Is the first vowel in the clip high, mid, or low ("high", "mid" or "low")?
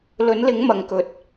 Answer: mid